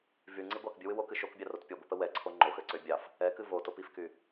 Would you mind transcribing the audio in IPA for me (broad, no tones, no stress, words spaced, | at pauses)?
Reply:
vyŋ͡ǀi ɡʷɑkbʲɨwɨ wokɨ ʃokbʲɑrot pʲoɡʷɨpə wɛǀʰo ŋ͡ǃoxøǀø bʲɑf | ɛkɨ votop ifky